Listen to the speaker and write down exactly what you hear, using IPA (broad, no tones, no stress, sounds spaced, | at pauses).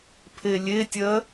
pʰ e lʲ e tʲ ɜ